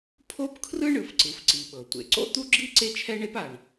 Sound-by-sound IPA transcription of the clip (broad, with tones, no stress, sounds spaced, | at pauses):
pʰ o˥ p kʰ r ɯ˥ ɳ ɯ˩ f ǀ ɯ˩ f ǀ i˩ ɓ ɤ˩ tʷ ḛ˩ ǀ o̰˥ t̪ u˥ ɡ͡ǁ i˥ ǀ e˥ t͡ʃʰ ɛ˥ ɳ e˥ p a˩ ɳ